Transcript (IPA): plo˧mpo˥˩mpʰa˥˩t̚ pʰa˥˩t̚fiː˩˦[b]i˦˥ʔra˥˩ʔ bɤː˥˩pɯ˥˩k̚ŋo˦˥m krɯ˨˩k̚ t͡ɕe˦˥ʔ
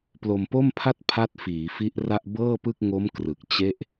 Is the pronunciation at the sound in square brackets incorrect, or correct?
incorrect